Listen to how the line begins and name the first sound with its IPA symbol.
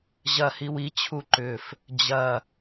ʑ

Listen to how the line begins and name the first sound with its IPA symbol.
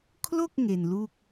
kʰ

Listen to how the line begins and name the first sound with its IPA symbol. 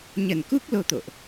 ɲ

